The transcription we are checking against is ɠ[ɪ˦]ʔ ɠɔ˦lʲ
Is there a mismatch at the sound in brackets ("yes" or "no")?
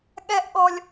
yes